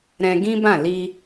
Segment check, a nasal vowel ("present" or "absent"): present